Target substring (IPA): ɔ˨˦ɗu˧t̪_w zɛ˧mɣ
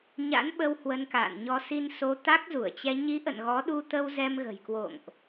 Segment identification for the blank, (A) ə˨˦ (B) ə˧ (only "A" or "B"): B